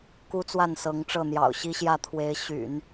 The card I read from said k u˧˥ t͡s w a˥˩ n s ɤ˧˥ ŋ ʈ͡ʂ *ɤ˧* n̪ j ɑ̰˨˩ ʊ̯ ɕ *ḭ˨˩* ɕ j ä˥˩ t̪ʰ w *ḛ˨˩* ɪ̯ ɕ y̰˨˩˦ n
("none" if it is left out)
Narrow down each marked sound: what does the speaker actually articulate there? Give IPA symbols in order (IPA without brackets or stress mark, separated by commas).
ɤ˥˩, i˥, e˧˥